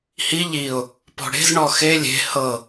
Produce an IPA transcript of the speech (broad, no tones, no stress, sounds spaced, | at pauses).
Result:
h i ʎ i ʊ̯ | p ɔ̤ ɽ e̤ z ɳ ɔ x e lʲ e̤ h ɤ